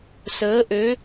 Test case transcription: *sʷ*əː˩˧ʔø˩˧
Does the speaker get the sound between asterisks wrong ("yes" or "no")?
yes